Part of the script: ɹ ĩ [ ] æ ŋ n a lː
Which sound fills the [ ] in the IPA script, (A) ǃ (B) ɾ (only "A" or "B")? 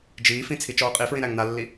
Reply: B